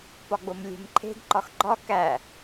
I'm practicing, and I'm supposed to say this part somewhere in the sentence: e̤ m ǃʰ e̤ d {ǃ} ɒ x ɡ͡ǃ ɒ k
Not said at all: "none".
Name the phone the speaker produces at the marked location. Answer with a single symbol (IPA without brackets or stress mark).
ǃ